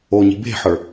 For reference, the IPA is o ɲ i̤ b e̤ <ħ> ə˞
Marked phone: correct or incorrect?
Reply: correct